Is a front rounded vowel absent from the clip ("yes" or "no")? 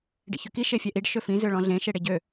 no